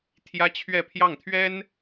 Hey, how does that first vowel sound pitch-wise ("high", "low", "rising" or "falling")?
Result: high